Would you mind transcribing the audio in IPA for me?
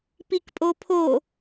p i k pʼ o pʰ o

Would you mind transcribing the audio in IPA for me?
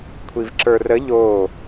kʷʰ i v ǁ ə˞ r ə ʎ o

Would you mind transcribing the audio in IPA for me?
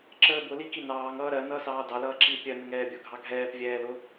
ǁ əː b ʊ l i k i n ɑː ŋ ʌː ɾ ɜ n ʌː s ɑː d ɑ l ʌː ǁ i pʲ ɜ n ə ŋ ɛː bʲ ʊ ɡʱ ɑ ɡʱ ɛː p vʲ ɛː l ʊ

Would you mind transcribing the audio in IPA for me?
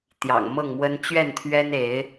t̪ j ɑ̰˨˩ ŋ m ɤ˥˨ ŋ m w ə˦ n t͡ɕ ɥ ɛ˥˨ n t̪ʰ ɥ ɛ˦ n e˨˦ ɪ̯

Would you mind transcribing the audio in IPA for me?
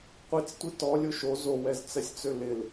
qʷ i t͡s tʷ i t ɔ lʲ o ʃ o z o w ɛ z t͡s ɛ sʲ t͡s ø l ɪ l

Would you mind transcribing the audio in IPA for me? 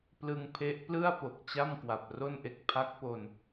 p l ɯ˧ ŋ pʰ e˦˥ ʔ p l ɯ˥˩ a̯ p o˨˩ k̚ t͡ɕ a˥˩ m k w a˨˩ p̚ r o˥˩ n ʔ e˥˩ k̚ pʰ a˦˥ k̚ p o˧ n

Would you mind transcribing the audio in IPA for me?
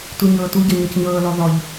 t u ɲ ɤː t u ɟ ɤ ɲ ɔ c ɲ ɤː l ɔ ð ɔ ʎ

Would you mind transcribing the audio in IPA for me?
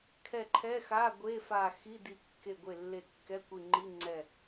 kʰ ɛ˧˩ ǃʰ ɛ˧˥˧ x a˧˥˧ ɡʷ e˧˥˧ f a˧˩ x i˧˥˧ d i˧˩ kː e˧˩ ɡʷ e˧˩ lː e˧˩ kː ɛ˧˥˧ kʷ i˧˩ ŋ͡ǃ i˧˥˧ ŋ͡ǀ ɛ˧˩

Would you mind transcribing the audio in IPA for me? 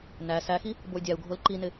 n æ s æ x i | b o y̯ dʲ æ u̯ ɡʱ o l ǃ i n ɪ

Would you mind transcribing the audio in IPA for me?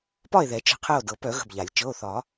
p ɒ˦˨ e̯ ð ɛ˨˩˦ t͡ʃ ə̤˩˧˩ qʰ ɛ˦˨ o̯ d ɤ˨˩˦ p œ˨˩˦ ɣ ə̤˩˧˩ b ʎ a˨˩˦ lʲ t͡ʃ ɤ˩˧˩ o̯ θ ɒ˨˩˦

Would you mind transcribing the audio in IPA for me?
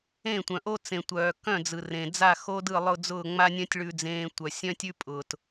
ẽ˦˨ tʷ œ̃˨ ʔ o˦ t͡s ẽ˨ tʷ œː˨ k œ̃˦˨ d͡z ɯ˨ r ẽ˨ d͡z a˦˨ x o˦ d ɯ˦˨ lˠ ʊ˦˨ d͡z ʊː˦˨ ŋ͡m a˦ nʲ œ̃˦ tʲ ɭ ʉ˦ d͡z ẽː˦ tʷ œ˨ sʲ œ̃˦ tʲ ʉ˦ pʼ ʊː˨ t

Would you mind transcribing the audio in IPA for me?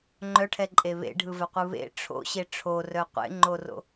ŋ͡ǃ œ ʈʰ ɛ ǃʼ e β ḛ ɖʱ ɯ v ɛ qʷ ɯ β ḛ ʈ͡ʂʰ o̰ ɕ e ʈ͡ʂʰ o r œ qʷ ḛ ŋ͡ǃ o r o̰

